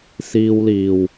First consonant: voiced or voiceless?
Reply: voiceless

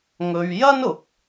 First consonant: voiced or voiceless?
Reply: voiced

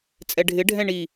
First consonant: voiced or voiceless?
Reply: voiceless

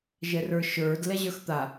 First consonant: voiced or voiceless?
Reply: voiced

